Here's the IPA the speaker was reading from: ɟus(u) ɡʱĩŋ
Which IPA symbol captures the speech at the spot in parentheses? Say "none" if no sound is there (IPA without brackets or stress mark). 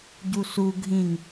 u